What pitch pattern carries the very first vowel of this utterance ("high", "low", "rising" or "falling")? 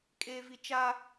low